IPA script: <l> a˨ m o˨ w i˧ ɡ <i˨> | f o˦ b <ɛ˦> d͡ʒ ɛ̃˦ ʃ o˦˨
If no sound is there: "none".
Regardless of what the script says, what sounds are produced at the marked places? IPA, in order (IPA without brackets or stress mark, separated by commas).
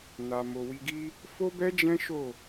n, i˦, ɛ˦